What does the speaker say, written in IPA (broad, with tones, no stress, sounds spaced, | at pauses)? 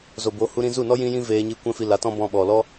z o˨ b o˨˦ h u˧ ɾ ĩ˧ z u˦˨ n ɔ˦ j ĩ˦ j ĩ˦ v eː˧ ɲ i˧ kʷ ɛ̃˦ f i˧ l a˨˦ t ɔ̃˦ b ɔ̃˧ ɓ ɔ˨ l ɔ˦